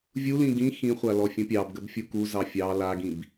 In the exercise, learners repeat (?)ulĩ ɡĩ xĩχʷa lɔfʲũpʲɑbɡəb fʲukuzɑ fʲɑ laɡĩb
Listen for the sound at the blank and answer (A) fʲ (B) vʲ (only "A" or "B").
B